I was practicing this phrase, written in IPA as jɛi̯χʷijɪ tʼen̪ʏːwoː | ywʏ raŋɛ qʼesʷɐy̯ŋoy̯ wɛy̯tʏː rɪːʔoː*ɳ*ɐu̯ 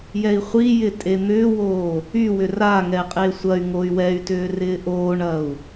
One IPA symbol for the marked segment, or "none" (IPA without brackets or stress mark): ɳ